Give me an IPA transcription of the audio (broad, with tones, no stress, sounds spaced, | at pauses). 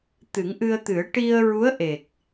t̪ ɨ˨˩˦ ŋ ʔ ɨ˧ ə̯ t̪ ɨ˨˩˦ ə̯ ʈ i˧ ə̯ ɹ u˧˥ ə̯ ʔ e˨˩ k̚